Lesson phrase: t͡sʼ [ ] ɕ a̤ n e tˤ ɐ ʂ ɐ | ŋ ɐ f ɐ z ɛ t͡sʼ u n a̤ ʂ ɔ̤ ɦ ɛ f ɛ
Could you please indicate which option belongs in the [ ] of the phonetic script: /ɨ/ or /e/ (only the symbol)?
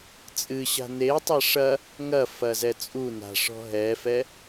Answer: ɨ